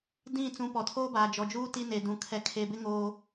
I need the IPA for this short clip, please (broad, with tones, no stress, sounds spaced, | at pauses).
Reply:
d ĩ˦˨ t͡s ũ˨˦ p ɔ˨ tʰ oː˦ b aː˨ d͡ʒ ɔ˨ d͡ʒ uː˦ t i˦ n e˨ d ũ˨ kʰ ɛ˨ kʰ e˨ b ɪ˦ ŋ oː˦